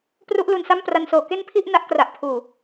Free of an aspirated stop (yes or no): no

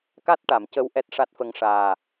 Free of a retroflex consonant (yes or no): no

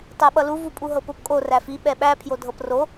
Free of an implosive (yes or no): no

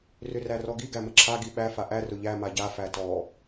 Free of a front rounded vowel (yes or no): no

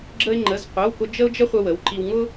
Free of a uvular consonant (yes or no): no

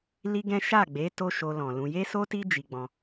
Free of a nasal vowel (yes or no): no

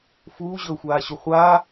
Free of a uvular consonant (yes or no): no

